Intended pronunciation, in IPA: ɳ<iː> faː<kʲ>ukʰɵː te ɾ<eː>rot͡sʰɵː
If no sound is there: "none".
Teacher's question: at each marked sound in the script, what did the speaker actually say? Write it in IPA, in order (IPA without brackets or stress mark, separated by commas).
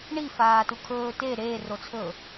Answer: i, t, eː